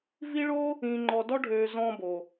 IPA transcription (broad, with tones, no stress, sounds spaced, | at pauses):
v i˥ ɭ o˥ | ĩː˧ ŋ͡ǃ ɔ˧ d ɔ˥ ɖʱ øː˧ z ɔ̃ː˧ b o˩